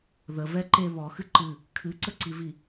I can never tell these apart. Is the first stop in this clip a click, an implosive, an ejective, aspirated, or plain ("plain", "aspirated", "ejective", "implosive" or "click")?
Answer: click